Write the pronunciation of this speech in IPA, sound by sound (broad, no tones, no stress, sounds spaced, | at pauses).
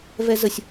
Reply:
v ɛ z ə sʲ